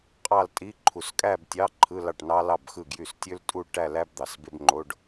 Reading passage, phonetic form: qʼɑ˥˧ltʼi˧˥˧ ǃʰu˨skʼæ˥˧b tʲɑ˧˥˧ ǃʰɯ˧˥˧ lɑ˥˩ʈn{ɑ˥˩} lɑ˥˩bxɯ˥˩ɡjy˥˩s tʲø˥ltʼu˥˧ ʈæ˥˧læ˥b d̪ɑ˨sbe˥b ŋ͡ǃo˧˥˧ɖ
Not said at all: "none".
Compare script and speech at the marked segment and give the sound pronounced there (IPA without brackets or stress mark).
ɑ˥